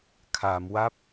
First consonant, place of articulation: velar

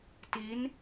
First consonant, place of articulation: alveolar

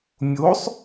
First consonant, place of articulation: labial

